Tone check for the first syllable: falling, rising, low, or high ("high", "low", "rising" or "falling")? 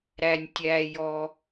low